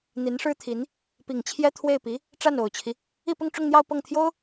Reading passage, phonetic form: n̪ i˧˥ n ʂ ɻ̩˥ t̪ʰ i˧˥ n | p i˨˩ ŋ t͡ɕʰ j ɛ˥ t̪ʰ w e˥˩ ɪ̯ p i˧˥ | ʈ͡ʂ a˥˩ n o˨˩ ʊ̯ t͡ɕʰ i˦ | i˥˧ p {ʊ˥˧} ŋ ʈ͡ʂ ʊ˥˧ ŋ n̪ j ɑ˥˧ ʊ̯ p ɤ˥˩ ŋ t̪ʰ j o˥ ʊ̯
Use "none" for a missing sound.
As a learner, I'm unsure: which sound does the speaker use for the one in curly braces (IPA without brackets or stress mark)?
ʊ˥˧